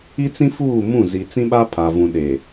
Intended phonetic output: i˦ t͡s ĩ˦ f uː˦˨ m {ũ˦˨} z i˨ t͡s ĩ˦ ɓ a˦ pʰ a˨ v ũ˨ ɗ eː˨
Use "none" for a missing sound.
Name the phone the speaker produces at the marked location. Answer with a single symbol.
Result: ũ˦˨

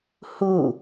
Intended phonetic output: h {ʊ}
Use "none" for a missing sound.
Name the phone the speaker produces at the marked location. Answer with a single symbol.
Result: u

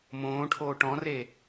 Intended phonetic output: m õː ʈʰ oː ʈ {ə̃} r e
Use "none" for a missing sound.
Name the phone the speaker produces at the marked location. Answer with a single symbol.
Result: ɔ̃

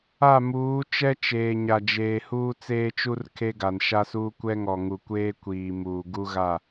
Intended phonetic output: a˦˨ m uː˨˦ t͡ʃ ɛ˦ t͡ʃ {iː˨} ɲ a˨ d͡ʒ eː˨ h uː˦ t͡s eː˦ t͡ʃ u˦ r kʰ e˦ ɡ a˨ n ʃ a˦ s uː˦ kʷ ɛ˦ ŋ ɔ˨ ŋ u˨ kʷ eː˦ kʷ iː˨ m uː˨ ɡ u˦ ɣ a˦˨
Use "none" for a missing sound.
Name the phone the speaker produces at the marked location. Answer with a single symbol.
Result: eː˨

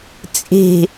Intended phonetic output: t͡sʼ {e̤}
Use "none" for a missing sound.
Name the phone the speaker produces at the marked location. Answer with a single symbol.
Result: e̤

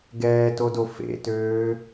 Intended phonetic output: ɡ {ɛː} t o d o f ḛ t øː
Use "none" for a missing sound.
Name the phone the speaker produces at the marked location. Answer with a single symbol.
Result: ɛː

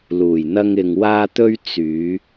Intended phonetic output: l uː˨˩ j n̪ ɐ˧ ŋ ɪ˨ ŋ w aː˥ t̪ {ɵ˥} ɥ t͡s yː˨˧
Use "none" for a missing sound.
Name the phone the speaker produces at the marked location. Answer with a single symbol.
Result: ɵ˥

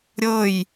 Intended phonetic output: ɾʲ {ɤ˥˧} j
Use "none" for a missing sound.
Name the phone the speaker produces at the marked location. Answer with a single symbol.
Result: ɤ˥˧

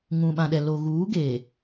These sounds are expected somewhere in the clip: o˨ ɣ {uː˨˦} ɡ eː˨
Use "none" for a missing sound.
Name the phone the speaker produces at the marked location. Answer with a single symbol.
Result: uː˨˦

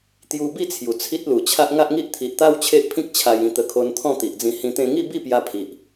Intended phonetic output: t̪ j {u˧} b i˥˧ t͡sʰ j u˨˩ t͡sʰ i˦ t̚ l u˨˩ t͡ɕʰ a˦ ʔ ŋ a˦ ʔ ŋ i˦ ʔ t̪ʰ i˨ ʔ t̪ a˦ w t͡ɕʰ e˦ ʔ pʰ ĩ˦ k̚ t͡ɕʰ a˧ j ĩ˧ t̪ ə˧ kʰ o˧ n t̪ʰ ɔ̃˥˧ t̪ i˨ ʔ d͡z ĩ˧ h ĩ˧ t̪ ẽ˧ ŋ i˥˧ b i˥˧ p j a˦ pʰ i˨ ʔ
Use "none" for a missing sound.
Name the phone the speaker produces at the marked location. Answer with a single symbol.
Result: u˧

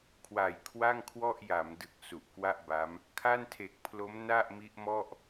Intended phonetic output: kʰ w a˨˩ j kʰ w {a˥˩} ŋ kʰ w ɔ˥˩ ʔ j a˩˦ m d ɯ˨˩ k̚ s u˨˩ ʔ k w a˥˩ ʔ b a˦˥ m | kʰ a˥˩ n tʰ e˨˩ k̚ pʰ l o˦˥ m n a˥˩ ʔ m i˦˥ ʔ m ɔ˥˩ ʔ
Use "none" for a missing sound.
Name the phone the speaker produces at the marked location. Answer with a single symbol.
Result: a˥˩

